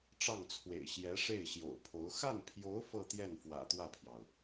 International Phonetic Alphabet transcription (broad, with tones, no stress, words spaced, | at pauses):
ʈ͡ʂɑ˥˩ŋt͡sʰwḛ˨˩ɪ̯ ɕjɛ˧˥ʂe˥˩ɪ̯ɕjo̰˨˩ʊ̯pʰo˧˥ʊ̯ xa˥˩npʰjo˧˥ʊ̯ fɤ˥˧t̪jɛ˥˩n fwä̰˨˩t̪wä˥˩pʰjɑ˩ʊ̯